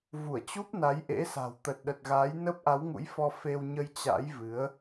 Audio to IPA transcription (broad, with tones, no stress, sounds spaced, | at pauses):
v u˧˩ ə̯ t͡ɕ u˦˥ p̚ n a˨˦ j ʔ ḛ˧˥ s a̤˨˩ w t̪ ə˨˩ t̚ ɗ ə˨˩ t̚ ɣ aː˨˦ j n ə˦˥ p̚ ʔ a˨˦ w ŋ ṵ˧˥ j f ɔ˧ f e˧ w ɲ ə˧ j t͡ɕ a̰˧˥ j v ɨ˨˦ ə̯